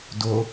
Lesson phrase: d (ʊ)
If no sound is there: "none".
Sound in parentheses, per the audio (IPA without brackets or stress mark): ʊ